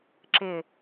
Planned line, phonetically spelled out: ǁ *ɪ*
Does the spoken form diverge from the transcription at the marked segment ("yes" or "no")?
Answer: no